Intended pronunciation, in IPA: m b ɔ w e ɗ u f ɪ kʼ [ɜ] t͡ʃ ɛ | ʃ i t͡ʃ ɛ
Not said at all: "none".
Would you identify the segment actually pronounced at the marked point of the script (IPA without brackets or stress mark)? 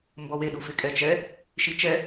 ɛ